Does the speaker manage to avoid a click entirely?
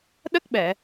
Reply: yes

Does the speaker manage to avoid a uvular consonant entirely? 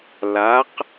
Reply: no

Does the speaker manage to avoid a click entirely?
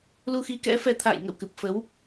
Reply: yes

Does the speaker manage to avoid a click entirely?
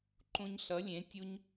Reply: no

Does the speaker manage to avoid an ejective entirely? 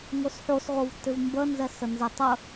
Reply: yes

